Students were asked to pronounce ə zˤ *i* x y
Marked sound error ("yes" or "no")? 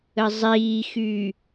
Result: yes